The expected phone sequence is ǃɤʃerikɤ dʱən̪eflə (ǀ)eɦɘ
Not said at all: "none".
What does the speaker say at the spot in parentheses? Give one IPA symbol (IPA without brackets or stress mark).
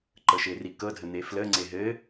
ŋ͡ǀ